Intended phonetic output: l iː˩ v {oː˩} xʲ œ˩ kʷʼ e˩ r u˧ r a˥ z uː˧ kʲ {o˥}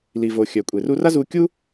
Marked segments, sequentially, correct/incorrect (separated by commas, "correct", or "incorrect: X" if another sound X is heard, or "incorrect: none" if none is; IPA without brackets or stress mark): correct, incorrect: u˥